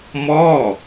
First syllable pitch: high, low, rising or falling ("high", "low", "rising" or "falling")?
falling